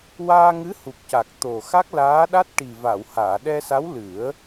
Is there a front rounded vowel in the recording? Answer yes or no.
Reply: no